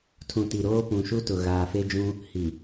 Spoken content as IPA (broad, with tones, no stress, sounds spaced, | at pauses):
tʰ ũ˨ t i˨ ɾ oː˦ p ũ˨ ʃ u˦ t ʊ˨ ɣ aː˨ f e˦ d͡ʒ ũ˦ | h i˨